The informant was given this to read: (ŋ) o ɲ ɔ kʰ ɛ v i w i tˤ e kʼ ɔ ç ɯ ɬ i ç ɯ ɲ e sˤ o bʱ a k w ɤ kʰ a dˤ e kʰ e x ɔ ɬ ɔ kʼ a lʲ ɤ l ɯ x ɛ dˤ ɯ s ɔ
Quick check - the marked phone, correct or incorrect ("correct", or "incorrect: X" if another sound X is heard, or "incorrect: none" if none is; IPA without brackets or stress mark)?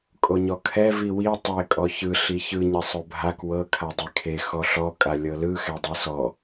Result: incorrect: kʼ